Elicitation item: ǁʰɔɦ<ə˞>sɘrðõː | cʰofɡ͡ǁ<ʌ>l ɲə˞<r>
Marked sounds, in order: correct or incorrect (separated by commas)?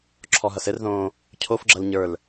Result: incorrect, correct, incorrect